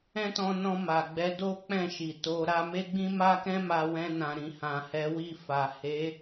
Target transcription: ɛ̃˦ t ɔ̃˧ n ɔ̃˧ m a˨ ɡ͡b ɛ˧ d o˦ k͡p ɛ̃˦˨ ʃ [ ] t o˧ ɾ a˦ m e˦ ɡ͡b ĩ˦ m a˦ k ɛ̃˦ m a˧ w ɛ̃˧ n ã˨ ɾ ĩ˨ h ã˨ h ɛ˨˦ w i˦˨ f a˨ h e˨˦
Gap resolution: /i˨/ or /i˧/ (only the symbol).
i˨